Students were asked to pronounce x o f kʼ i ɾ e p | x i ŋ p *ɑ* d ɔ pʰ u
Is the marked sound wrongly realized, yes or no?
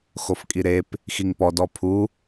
yes